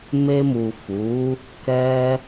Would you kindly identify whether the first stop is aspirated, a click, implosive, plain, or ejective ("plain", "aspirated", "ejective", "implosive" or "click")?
plain